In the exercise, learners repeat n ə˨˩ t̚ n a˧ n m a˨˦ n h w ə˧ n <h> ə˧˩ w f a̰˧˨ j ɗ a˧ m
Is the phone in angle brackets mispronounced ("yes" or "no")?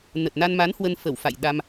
yes